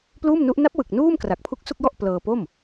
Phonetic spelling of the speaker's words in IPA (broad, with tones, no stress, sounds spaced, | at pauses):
p l uː˥˩ m n u˦˥ ʔ n a˦˥ p̚ w ɯ˨˩ k̚ n uː˥˩ m k r a˨˩ k̚ pʰ u˦˥ k̚ s u˥˩ k̚ j ɔ˥˩ ʔ p l ɤː˧ p o˥˩ m